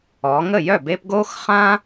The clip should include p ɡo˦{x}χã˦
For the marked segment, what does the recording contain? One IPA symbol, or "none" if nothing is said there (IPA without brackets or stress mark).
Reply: x